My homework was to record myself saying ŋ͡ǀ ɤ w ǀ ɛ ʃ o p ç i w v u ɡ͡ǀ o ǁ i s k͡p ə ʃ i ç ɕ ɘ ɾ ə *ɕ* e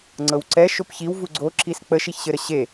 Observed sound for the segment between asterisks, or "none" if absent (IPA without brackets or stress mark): ɕ